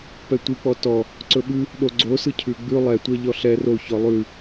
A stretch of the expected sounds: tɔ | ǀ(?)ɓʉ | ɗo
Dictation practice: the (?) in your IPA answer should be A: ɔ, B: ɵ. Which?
B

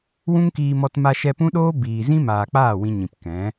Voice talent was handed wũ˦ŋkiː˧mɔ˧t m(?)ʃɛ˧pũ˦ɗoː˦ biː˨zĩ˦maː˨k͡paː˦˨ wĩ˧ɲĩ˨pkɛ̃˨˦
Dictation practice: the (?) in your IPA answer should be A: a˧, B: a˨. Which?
A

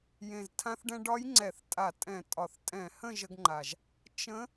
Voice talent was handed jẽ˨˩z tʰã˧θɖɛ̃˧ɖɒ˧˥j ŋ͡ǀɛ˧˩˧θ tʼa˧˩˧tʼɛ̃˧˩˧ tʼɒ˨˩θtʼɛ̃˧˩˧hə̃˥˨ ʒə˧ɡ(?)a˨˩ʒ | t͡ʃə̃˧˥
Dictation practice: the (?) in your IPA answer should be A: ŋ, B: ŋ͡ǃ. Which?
B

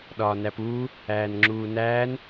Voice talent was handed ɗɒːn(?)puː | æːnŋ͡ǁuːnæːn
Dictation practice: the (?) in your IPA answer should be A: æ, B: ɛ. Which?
A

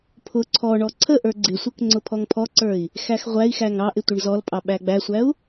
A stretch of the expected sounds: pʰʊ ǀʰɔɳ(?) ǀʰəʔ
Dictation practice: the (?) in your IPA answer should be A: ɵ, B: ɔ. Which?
B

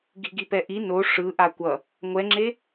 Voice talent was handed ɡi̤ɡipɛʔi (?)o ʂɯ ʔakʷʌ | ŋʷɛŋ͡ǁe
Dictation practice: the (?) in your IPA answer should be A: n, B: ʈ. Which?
A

